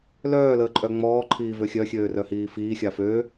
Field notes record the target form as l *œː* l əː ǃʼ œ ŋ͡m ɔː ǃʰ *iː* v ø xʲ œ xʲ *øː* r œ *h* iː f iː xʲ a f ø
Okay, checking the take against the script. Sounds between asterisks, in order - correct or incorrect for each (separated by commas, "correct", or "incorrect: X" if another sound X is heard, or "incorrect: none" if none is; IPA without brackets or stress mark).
correct, correct, correct, correct